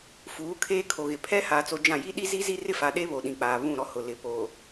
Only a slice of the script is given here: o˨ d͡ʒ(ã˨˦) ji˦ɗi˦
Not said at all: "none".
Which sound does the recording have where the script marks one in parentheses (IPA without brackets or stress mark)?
ã˦˨